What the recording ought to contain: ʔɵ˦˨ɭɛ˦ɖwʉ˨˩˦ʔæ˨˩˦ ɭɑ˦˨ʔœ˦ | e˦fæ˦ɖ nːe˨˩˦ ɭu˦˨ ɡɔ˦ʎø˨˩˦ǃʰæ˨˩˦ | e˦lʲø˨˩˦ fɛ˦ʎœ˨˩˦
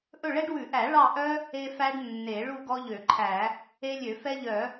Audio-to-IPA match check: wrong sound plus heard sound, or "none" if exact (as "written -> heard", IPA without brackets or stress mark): none